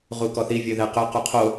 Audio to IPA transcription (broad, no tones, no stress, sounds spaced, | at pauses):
ʁ u k ɔ θ i vʲ ɵ ð ɛ q ɵ q u qʰ o